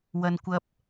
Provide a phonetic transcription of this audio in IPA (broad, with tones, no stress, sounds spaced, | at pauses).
w ɐ˥ n kʷ ɐ˥ p̚